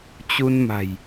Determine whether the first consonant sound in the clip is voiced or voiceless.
voiceless